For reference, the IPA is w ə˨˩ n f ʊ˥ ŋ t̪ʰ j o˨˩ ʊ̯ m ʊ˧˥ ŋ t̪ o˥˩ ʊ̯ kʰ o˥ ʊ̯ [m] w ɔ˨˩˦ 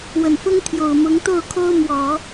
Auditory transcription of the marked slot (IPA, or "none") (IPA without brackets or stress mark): m